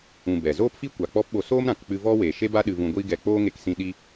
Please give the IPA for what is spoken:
ũ˨ b ɛ˨ z oː˦ p f i˦ kʷ a˨ k͡p ɔ˦ p ɓ o˧ s oː˦ m ɾ ã˨ k k͡p ɨ˧ v ɔ˦ w eː˨ ʃ e˦ b a˦ ɗ ɨ˧ v ũ˧ ɡʷ iː˦ ɡ ɛ˧ k͡p oː˦ ŋ e˧ k s ĩ˧ ɗ i˦

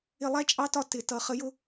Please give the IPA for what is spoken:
ɪ˧˩˧ lˠ æ˦˥ t͡ʃʼ ɑ˦˥ t ɒ˧ t ɪ˩˧ t ʌ˩˧ χ ə˩˥ j ʊ˦˥

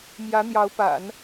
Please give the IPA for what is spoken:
m j ä˧˥ n̪ j ɑ˧˥ ʊ̯ p a̰˨˩˦ n

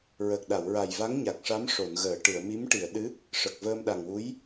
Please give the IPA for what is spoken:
ɹ ə˨˩ k̚ ɗ a˨˩˨ w ɹ a˨˩ j v a˧˥ ŋ ɲ a˨˩ k̚ ʂ a˧˥ m ʂ o˨˩˨ n ɣ əː˨˩˨ ʈ ɨ˨˩˨ ə̯ m i˧˥ m ʈ i˨˩˨ ə̯ ɗ ɨ˧˥ | ʂ ə˨˩ k̚ v əː˧ m ɗ a˨˩ ŋ w u˧˥ j

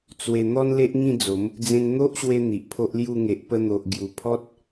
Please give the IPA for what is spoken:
t͡s w e˧ n̪ ɔ˦ n l e˦ ʔ ŋ ĩ˥˧ d͡z o˨˦ m | d͡z ẽ˧ n n̪ o˦ ʔ ɕ w e˧ n̪ i˨ ʔ pʰ o˦ ʔ l j u˥˧ ŋ e˨ ʔ p ə˧ n̪ o˨ ʔ ɡ j u˨˩ pʰ ɔ˦ t̚

